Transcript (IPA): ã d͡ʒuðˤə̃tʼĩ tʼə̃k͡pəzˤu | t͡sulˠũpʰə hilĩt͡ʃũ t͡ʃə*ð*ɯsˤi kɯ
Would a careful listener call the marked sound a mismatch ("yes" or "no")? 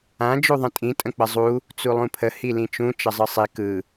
yes